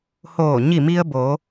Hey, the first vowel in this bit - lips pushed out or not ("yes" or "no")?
yes